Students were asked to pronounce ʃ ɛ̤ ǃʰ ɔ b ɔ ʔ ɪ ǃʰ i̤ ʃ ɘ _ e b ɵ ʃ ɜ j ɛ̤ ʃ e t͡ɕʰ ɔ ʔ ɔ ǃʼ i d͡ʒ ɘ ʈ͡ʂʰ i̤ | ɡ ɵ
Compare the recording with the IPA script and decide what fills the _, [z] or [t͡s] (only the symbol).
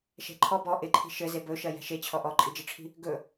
z